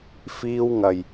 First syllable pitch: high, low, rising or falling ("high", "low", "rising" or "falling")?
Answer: high